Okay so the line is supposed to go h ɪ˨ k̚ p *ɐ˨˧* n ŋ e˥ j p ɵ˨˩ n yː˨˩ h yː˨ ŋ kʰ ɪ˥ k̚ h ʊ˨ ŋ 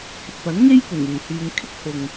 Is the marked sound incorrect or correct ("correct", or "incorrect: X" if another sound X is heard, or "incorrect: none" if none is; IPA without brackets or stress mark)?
incorrect: ɐ˨˥